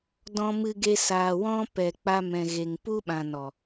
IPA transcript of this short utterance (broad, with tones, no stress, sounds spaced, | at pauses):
d ɔ̃˦ m ɨ˦ ɡ e˦ s aː˨ w ɔ̃˦ p ɛ˨ k͡p a˧ m ɛ̃˨ ɣ e˨ ŋ p u˦ ɓ ã˨ n ɔ˨